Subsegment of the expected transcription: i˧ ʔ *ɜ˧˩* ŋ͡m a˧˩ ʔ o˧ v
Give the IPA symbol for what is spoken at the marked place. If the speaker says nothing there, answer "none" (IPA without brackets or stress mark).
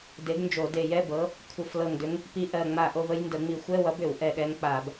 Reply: ɜ˧˩